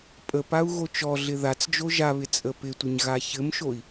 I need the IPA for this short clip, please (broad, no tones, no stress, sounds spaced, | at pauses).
pʼ ə p a u̯ ɣ o t͡ʃ ɔ ɮ ɪ ð a t͡s d͡ʒ o ʒ a β ɪ t͡sʼ ə p ɪ tʷ ə ɲ ɣ a ç ɘ m ʃ o i̯